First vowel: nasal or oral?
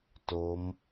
oral